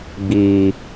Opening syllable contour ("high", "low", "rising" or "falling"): low